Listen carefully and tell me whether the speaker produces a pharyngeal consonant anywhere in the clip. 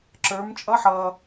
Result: yes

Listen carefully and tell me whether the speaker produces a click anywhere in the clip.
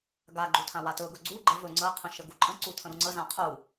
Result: yes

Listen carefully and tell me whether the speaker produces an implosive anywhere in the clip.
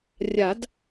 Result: no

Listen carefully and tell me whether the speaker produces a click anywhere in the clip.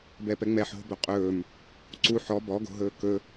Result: yes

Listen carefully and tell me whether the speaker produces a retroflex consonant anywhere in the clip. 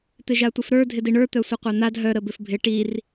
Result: yes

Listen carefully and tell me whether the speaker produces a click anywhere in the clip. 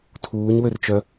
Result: no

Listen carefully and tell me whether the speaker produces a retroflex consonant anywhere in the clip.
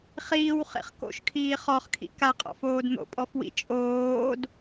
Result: no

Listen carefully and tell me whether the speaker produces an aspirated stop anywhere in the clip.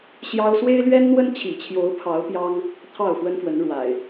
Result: yes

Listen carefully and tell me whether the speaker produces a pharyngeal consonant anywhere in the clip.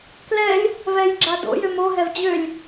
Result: no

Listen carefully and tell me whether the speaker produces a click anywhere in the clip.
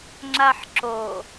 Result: yes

